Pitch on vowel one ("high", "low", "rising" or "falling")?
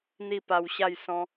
falling